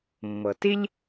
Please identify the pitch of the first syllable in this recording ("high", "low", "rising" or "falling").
low